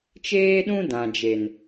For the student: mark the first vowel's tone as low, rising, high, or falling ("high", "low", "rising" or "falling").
high